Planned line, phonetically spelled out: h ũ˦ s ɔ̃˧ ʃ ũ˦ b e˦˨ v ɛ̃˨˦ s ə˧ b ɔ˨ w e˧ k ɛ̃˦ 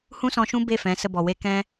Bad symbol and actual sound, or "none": v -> f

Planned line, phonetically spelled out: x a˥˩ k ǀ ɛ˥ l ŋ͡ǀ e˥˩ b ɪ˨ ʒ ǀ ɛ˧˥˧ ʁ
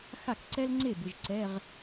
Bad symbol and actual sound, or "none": none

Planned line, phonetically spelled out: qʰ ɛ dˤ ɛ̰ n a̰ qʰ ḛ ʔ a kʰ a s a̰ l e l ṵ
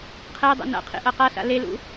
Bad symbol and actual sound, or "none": kʰ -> q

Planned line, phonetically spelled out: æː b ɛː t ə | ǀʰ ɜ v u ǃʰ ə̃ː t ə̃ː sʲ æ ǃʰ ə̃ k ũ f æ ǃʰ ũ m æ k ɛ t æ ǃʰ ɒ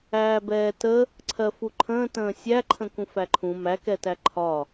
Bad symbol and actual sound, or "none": v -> f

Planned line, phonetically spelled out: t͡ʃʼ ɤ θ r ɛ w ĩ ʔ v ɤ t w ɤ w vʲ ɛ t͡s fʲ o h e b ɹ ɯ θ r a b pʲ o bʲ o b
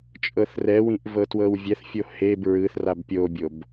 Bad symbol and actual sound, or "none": t͡s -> θ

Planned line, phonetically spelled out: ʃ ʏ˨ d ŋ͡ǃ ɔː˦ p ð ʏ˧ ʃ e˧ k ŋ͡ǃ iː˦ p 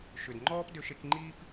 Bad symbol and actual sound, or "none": ð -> d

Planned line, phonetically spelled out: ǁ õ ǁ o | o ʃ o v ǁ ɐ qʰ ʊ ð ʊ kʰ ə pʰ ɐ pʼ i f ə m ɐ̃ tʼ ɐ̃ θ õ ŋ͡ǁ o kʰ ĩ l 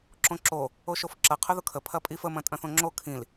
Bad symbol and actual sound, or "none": v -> f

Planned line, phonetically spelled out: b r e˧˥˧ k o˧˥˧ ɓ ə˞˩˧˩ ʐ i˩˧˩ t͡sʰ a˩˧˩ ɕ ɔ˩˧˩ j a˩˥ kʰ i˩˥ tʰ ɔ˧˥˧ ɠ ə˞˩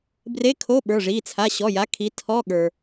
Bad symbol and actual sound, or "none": k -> kʰ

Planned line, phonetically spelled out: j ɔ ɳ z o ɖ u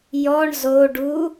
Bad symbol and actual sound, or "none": none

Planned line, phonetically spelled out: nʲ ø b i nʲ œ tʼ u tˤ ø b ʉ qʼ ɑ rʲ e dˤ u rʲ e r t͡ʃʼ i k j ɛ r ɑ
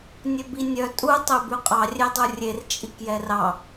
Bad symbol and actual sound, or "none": none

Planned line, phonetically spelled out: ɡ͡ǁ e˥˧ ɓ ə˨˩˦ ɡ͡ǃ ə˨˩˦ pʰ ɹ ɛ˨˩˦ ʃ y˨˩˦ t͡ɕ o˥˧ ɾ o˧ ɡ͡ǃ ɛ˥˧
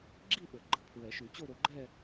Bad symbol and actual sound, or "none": e˥˧ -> i˥˧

